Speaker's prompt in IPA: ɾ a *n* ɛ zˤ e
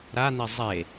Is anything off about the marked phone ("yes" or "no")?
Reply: no